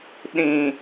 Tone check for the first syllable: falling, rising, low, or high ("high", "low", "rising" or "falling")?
low